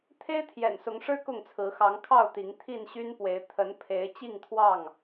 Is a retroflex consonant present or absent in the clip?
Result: present